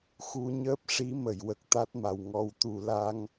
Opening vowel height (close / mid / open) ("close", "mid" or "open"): close